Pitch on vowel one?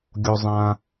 high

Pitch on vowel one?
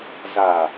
low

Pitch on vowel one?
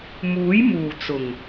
rising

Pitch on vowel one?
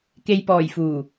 low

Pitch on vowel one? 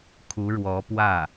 rising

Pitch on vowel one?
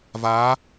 rising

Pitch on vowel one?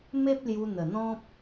high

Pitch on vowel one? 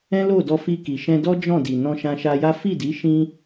high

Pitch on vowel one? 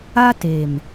high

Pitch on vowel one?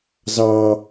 high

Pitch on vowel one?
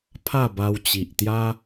falling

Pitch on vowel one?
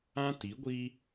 high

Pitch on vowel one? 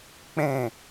falling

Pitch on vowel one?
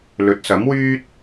rising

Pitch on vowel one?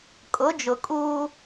rising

